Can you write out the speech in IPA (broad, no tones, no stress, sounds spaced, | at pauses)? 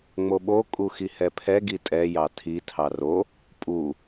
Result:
ŋ͡m o ɓ o kʼ u x i h ɛ pʰ ɛ ɡ i tʼ ɛ j ɑ tʰ i tʰ ɑ r o | pʼ u